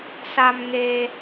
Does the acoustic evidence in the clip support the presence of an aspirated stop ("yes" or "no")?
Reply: no